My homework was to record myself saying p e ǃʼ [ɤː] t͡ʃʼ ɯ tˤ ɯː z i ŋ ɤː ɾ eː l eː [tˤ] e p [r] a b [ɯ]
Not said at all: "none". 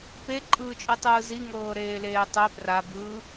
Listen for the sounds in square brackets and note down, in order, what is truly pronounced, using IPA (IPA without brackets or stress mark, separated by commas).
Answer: ɯː, tˤ, r, ɯː